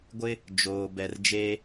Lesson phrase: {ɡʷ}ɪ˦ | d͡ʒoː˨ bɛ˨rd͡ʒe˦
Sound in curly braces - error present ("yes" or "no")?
no